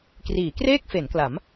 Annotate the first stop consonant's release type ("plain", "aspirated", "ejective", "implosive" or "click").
plain